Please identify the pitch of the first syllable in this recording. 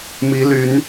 rising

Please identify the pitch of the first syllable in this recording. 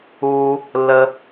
low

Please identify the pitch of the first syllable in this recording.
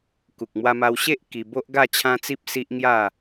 low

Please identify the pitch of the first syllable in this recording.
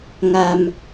low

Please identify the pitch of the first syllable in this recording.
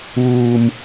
low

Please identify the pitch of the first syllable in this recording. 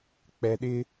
low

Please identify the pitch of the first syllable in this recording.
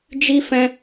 high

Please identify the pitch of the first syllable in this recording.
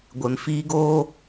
low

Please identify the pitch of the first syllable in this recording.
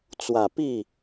low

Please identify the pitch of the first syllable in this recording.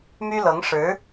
high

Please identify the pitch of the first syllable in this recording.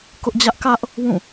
high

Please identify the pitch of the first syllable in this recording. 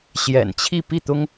low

